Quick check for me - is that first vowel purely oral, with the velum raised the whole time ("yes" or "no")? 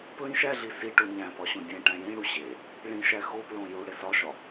no